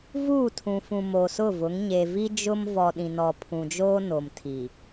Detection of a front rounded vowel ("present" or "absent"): absent